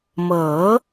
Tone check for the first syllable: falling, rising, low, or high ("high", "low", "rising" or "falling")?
rising